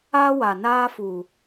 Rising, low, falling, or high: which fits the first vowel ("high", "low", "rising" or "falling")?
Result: high